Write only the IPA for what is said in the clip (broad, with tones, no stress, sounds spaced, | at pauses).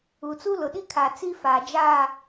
u˨ t͡s u˦ l ʊ˨ ɗ i˦ kʰ a˨ t͡s i˦ f aː˨ d͡ʒ aː˦˨